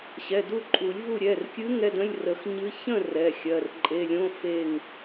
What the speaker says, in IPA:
ɕ ɛ˩˧˩ d u˥˨ ǃʼ u˨˩˦ lʲ v u˥˨ ɾʲ ɛ˩˧˩ r kʲ ɨ˧˥ ŋ ɛ˧˥˧ d ə̃˧˥˧ lʲ r ə˨˩˦ x ɲ ɨ˧˥ ç ə̃˥˨ r ɛ˩˧˩ xʲ ɜ˩˧˩ r ǃʼ e˩˧˩ lʲ õ˧˥˧ f e˥˨ ŋ

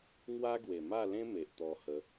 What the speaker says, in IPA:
ŋ w a˦ ɡ w e˨˩ m a˥˧ l ẽ˦ m e˨ ʔ t̪ ɔ˧ h ə˨˦

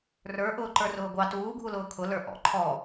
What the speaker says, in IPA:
r ə˞ ʔ ʊː ǃ ə˞ r ʊː ɡʷ ɑ t uː ɡʱ u l ʊː kʰ ʊ l ə˞ ʔ ɔ̰ ǃʰ ɔ

